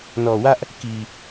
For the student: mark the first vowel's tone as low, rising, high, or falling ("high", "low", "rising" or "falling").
low